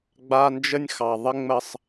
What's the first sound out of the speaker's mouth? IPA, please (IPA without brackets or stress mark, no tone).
ɡ͡b